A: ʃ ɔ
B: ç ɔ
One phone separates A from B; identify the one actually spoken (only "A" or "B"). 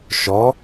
A